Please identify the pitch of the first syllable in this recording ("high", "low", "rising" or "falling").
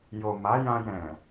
low